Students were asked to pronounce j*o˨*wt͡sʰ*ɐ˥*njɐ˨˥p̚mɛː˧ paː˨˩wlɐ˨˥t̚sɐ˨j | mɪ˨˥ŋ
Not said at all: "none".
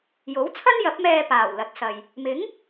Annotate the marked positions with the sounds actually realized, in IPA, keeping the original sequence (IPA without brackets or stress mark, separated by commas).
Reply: o˨˥, ɐ˥